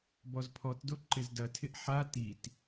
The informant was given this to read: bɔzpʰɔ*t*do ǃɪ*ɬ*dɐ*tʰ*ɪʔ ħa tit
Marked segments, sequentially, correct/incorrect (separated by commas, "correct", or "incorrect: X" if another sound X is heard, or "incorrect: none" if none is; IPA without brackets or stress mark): correct, incorrect: z, correct